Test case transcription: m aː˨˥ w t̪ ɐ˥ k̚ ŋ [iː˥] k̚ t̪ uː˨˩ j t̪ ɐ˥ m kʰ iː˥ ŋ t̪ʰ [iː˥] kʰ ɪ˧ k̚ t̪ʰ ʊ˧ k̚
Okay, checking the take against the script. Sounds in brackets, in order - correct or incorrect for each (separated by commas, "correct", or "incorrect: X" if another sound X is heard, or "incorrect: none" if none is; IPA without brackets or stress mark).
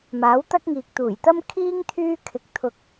incorrect: iː˨, incorrect: yː˥